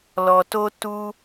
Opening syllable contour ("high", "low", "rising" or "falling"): low